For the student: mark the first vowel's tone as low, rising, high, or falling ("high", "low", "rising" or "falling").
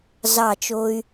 falling